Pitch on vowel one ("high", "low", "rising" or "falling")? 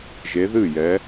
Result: rising